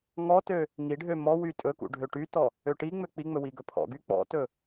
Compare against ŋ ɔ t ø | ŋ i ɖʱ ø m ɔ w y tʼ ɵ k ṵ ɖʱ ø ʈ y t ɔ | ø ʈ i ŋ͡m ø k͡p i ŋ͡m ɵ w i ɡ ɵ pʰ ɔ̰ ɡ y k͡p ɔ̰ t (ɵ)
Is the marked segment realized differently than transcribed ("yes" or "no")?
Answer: no